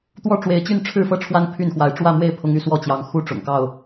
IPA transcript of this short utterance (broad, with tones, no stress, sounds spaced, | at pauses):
t̪ w ɔ˥˨ ʈ͡ʂ w e˨˦ ɪ̯ t͡ɕ y˥˨ n ʈ͡ʂʰ ɻ̩˥˨ f ɤ˥˨ ʈ͡ʂʰ w a˦ n pʰ y˥˨ n x w a˨˦ ɪ̯ ʈ͡ʂ w ä˥˨ m w e˥˨ ɪ̯ pʰ ʊ˦ ŋ y˥˨ s w ɔ˥˨ t͡ɕ j ɑ˨˦ ŋ x u˥˨ ʈ͡ʂ ʊ̰˨˩ ŋ k ɑ˥˨ ʊ̯